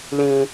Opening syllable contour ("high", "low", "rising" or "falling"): low